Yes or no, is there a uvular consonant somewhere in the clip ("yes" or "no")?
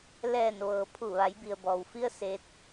no